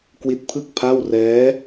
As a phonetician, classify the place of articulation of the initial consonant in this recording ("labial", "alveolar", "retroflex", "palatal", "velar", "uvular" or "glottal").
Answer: velar